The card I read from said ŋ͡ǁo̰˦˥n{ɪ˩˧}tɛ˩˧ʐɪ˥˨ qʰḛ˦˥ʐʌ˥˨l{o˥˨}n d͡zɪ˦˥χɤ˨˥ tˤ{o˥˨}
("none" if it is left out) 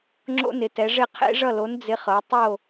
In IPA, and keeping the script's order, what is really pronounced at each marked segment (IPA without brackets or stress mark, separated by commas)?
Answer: ɪ˩˧, o˨˥, o˥˨